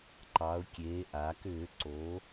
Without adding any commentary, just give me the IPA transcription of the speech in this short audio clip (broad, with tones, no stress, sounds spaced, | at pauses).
ǃ ɑ˩˧ ʊ̯ kʲ eː˩˧ ʔ a˩˧ k ʏː˧˩˧ ǀ o˩˧